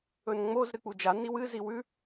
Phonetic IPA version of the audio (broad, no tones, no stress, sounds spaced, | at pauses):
ɵ n ŋ͡m o z ɾ ɨ k͡p u d͡ʒ a n i w ɨ z i w ʉ